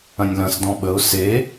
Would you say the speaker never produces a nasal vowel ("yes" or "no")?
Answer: no